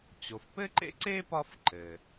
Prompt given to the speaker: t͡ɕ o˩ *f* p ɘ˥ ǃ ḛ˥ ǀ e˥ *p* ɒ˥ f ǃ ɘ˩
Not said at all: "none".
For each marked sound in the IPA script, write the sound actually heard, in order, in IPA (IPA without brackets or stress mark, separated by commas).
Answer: f, p